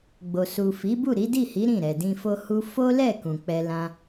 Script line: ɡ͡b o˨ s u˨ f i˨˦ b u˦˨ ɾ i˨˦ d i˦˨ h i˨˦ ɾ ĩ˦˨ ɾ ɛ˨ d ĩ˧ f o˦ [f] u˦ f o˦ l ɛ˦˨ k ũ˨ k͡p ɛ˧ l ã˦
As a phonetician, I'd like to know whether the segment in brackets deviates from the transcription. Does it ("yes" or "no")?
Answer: yes